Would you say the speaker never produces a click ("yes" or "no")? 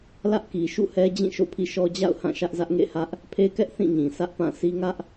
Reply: yes